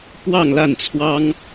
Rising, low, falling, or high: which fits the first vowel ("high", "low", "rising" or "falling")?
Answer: falling